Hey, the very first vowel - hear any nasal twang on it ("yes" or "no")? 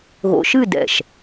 no